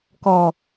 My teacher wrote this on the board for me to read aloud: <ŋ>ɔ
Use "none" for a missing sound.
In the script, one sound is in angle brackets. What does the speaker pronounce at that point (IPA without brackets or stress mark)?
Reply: k